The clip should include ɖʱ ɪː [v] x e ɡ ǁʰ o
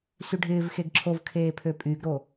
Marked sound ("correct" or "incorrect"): correct